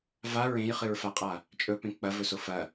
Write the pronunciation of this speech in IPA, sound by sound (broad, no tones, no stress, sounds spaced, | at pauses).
v a ɹ ẽ j χ ɨ ɹ f a qʼ a | t͡ʃʼ ɵ p ẽ k͡p ɐ v ɵ s o f ɐ